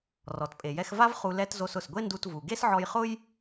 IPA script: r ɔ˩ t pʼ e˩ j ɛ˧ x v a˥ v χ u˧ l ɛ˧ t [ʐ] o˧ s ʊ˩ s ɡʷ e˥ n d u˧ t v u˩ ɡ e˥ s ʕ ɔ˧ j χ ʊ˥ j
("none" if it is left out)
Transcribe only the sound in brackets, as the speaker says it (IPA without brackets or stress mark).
z